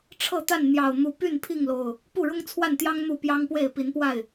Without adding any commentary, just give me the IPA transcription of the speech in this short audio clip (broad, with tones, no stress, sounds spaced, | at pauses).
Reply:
ʈ͡ʂʰ ɤ˥˨ t̪ a˥˨ n n̪ j ɑ˨˩ ʊ̯ n̪ u˨˦ p y˥˨ n pʰ i˥˨ ŋ l o˨˩ ʊ̯ | p u˥˨ ɻ ʊ˦ ŋ t͡sʰ w a˥˨ n t̪ j ɑ˦ ŋ n̪ u˥˨ p j ɑ˦ ŋ p w e˥˨ ɪ̯ p i˨˦ n p w a˥˨ ɪ̯